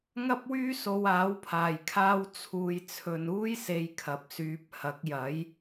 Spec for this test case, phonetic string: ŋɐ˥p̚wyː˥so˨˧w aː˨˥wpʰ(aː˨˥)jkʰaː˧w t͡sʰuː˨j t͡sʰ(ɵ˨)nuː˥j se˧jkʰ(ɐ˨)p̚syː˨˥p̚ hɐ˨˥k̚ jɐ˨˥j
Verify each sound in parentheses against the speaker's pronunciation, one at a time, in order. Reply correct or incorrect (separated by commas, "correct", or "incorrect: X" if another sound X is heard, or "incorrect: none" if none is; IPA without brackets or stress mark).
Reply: incorrect: aː˨˩, correct, correct